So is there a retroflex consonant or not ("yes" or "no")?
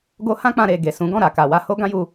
no